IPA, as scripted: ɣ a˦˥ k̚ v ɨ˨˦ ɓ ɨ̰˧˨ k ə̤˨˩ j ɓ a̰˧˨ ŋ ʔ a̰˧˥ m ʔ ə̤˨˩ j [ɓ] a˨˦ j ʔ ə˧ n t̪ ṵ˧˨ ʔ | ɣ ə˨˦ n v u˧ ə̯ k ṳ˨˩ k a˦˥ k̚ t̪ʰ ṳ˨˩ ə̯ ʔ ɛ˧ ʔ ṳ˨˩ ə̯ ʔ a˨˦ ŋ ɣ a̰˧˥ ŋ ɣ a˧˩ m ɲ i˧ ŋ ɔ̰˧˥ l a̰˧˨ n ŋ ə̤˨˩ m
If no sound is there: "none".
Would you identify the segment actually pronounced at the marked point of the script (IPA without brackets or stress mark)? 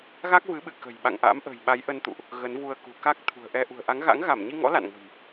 ɓ